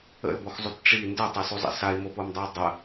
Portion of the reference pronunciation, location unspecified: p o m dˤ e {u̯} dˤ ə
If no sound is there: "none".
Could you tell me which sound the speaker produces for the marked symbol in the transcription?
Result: u̯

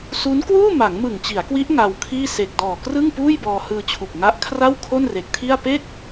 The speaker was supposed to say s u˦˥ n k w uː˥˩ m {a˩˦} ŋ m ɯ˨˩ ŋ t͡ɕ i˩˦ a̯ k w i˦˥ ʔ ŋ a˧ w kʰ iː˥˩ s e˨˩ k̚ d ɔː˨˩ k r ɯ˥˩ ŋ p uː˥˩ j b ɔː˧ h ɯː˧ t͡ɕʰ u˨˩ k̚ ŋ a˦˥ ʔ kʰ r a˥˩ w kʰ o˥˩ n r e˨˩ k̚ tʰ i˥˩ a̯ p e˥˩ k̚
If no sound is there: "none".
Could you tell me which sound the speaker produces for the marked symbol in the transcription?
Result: a˩˦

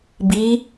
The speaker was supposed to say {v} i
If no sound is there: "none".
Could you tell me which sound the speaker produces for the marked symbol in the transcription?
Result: b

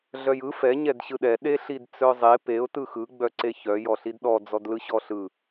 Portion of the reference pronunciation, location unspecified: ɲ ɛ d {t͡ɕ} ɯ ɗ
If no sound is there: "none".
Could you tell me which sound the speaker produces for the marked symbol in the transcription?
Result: ɕ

